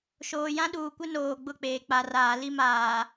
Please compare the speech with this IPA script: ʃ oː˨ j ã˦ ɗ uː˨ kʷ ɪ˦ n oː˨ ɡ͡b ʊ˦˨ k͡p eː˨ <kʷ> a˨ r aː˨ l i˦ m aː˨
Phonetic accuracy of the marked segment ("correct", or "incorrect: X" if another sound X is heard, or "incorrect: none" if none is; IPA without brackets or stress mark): incorrect: k͡p